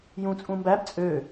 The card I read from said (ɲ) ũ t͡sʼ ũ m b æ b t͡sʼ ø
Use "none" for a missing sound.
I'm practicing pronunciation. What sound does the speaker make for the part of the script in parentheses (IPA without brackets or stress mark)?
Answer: j